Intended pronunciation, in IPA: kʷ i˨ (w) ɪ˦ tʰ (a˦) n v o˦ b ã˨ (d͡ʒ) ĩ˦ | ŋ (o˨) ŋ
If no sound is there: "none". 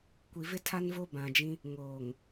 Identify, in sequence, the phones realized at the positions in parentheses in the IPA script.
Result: v, a˦, d͡ʒ, oː˨

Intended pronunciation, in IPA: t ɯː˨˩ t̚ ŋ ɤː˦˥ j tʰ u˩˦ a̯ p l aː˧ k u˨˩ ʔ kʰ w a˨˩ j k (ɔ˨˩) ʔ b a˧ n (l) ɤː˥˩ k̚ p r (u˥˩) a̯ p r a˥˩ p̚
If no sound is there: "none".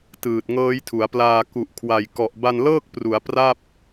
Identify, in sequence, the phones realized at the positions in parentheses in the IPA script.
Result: ɔ˨˩, l, u˩˦

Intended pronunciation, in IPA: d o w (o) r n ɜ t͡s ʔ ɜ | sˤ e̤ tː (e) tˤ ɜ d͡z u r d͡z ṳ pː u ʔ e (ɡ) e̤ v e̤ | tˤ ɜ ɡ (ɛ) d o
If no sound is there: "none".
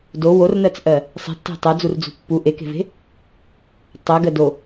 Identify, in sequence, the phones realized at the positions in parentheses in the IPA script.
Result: o, e̤, k, ɜ

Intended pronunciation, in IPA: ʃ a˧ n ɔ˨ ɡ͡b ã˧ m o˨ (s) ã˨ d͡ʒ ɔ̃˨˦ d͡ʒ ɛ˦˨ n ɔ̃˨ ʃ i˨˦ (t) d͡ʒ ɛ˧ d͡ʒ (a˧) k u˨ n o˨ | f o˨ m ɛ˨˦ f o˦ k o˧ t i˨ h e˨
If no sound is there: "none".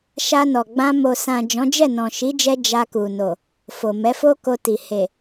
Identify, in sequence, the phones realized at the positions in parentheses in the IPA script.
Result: s, none, a˧

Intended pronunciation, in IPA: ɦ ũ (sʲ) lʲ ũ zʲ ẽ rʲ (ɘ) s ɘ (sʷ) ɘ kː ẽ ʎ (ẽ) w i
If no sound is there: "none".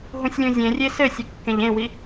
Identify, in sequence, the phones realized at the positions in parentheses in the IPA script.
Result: sʲ, e, sʲ, ẽ

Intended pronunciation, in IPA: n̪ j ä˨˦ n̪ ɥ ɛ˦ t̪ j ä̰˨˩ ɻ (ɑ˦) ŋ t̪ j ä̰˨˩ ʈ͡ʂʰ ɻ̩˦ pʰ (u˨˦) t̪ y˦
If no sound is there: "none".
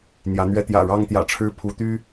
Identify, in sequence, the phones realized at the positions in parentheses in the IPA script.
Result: ɑ˦, u˨˦

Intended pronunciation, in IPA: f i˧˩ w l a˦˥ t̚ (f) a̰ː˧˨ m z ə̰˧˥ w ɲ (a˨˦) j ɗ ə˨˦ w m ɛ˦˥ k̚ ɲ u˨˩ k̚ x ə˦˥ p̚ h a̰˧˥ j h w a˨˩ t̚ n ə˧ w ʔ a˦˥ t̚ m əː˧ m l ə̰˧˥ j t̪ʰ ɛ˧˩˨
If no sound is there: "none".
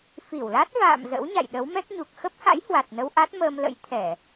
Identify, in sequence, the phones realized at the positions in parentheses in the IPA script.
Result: v, a̰˧˨

